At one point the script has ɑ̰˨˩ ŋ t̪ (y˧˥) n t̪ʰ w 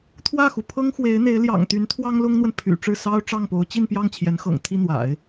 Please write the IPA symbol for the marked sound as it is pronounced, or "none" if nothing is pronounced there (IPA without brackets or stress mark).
y˧˥